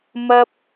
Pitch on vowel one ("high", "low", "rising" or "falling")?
high